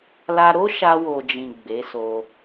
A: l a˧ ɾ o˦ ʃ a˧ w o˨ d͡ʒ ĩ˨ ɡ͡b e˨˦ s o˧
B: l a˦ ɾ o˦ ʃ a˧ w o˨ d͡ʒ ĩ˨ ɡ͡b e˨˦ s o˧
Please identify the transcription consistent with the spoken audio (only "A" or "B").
A